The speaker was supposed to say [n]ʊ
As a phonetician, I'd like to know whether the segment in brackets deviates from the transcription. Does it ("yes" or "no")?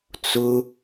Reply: yes